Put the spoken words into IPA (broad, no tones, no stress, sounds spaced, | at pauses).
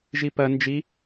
ʒ i p ɐ n d͡ʒ i